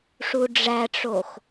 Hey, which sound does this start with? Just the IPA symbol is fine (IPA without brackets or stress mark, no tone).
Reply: ʂ